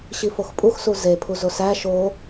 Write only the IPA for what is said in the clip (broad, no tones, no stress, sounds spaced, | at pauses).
ɕ i f o x pʼ u x s u z e pʰ u z o s æ ʃ o